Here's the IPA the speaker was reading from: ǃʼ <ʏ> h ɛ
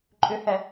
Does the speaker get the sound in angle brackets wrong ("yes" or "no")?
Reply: no